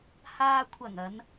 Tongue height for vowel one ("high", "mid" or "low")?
low